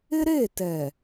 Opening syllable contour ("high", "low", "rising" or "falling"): high